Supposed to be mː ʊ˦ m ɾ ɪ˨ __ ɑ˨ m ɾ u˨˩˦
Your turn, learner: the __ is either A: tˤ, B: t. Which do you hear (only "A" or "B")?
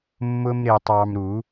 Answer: A